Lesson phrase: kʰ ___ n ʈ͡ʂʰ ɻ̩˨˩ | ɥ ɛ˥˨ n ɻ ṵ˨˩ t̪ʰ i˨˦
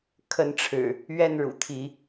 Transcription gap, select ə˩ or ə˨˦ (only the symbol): ə˨˦